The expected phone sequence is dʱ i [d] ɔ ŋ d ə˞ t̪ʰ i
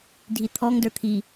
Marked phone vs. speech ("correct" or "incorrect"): incorrect